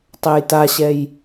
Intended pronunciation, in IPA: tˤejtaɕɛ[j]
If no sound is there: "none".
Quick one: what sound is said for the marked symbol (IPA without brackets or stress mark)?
j